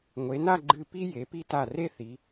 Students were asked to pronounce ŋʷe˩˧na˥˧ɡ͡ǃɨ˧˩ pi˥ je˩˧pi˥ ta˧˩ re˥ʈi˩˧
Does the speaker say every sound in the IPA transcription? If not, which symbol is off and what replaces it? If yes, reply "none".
ʈ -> θ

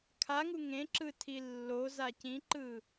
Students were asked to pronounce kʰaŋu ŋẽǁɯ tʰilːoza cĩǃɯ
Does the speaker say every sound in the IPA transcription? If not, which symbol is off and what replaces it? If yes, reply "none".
none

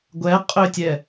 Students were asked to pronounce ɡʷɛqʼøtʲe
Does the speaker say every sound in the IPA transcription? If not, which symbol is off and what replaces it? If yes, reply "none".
e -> ɛ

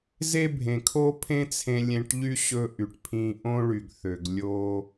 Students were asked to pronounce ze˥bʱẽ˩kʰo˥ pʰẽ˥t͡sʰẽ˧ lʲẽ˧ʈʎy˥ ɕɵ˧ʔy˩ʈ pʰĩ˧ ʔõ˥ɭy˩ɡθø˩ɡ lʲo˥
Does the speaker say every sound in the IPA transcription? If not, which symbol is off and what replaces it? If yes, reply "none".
none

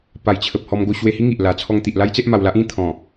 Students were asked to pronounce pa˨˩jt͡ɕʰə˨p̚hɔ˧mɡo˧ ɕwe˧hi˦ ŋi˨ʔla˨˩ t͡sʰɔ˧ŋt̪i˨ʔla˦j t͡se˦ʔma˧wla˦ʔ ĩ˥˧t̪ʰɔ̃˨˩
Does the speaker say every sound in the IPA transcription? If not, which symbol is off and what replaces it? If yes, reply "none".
none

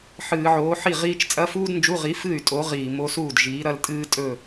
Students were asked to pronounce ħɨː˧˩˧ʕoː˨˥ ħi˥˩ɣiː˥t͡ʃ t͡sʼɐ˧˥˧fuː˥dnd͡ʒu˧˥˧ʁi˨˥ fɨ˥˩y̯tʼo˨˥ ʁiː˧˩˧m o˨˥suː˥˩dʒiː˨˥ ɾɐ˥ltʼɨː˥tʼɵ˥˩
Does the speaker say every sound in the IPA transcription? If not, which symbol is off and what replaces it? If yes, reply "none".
ɣ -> ʁ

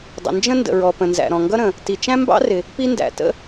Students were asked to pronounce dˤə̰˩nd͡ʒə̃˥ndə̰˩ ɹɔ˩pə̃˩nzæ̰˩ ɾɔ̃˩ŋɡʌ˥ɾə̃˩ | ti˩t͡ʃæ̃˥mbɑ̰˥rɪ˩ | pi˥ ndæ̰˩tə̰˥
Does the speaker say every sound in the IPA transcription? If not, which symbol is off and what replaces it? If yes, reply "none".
none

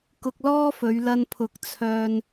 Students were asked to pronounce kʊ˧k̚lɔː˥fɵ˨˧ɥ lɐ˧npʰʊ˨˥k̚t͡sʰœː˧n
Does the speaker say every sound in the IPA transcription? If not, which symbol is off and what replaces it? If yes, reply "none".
none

